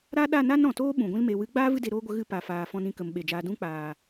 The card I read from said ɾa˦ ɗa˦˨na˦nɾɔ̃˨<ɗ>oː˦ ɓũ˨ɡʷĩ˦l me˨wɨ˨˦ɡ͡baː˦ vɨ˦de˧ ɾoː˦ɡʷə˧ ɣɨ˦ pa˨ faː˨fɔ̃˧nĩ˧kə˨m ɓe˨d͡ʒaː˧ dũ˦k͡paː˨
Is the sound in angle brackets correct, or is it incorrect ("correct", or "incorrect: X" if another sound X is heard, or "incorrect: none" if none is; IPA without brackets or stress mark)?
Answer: incorrect: t